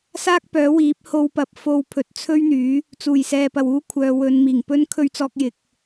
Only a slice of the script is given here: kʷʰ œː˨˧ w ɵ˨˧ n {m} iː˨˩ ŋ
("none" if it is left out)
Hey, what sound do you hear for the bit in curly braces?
m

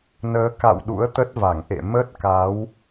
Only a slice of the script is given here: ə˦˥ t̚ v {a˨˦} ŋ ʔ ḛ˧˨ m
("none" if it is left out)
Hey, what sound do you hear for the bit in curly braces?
a˧˩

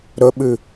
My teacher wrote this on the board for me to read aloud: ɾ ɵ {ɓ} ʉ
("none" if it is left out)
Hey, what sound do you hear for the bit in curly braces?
ɓ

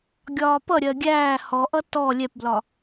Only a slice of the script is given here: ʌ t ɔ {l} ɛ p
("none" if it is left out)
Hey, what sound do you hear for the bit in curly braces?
lʲ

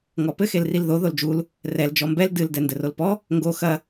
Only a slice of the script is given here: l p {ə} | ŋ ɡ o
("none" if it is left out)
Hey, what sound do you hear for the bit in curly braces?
ɔ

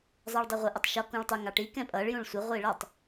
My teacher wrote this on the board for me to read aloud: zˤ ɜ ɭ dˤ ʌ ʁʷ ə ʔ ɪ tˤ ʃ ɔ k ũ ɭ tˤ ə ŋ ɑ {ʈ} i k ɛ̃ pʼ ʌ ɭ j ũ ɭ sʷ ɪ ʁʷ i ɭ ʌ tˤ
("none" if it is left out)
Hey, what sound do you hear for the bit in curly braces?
ʈ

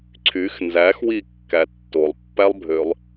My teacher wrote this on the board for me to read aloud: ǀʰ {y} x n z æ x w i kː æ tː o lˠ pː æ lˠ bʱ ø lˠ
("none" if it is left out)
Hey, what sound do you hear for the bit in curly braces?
y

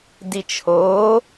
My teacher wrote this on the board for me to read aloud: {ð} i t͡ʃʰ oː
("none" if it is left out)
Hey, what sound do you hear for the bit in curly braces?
d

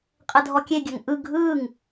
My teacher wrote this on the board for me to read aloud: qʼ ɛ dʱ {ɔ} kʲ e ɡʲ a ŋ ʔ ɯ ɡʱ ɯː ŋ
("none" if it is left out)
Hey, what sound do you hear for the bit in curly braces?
ɔ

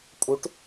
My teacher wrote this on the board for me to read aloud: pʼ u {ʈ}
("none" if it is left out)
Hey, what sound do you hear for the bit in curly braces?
ʈ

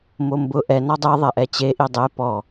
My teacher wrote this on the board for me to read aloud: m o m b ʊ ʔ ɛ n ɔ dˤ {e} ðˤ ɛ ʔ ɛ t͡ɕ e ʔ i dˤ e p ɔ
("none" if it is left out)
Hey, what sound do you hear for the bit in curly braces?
e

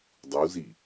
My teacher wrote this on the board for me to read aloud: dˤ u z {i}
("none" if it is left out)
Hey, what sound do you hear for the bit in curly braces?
i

